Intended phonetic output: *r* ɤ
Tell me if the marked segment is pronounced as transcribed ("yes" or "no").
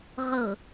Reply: no